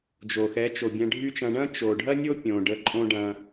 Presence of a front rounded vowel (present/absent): present